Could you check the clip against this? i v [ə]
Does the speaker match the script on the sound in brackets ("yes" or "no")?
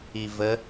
yes